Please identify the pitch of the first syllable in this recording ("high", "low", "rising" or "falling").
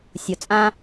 low